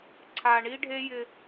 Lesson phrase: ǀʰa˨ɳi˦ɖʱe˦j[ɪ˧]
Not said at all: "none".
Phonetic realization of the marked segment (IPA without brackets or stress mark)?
ɪ˧